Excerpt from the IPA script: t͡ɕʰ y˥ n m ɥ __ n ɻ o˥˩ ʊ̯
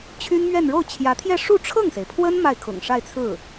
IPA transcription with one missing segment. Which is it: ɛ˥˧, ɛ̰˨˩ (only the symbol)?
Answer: ɛ˥˧